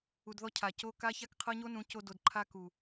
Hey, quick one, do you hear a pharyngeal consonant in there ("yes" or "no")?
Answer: no